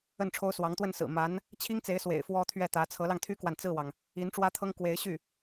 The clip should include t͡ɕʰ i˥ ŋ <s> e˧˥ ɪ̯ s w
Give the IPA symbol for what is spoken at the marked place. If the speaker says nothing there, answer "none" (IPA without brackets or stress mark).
t͡s